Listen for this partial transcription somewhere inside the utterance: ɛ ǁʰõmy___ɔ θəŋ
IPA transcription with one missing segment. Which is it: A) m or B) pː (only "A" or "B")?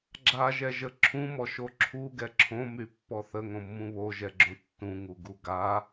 B